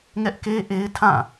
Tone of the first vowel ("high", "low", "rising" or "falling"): high